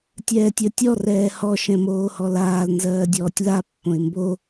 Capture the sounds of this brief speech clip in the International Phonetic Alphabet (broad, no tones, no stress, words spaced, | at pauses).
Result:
tʲɛːtʲə˞tʲɔ rɛːhɔ ʃɛ̃moːhɔlaːl nzɜːdʲɔːtʲla pːõɪ̯mbo